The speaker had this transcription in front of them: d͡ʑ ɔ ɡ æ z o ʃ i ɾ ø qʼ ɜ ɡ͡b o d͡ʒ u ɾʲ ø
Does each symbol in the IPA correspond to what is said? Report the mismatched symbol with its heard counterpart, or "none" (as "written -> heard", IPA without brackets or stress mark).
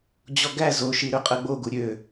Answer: d͡ʒ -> ɡ